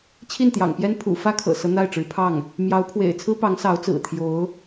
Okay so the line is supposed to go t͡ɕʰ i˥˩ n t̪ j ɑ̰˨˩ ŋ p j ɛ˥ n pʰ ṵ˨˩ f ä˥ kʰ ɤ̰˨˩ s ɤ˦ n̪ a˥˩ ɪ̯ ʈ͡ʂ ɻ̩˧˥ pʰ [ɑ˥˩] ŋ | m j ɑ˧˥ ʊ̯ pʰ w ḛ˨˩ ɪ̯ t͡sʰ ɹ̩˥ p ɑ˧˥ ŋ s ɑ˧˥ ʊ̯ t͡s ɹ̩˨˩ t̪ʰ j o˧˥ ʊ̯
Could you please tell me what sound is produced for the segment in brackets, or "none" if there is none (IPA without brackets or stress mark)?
ɑ˥˩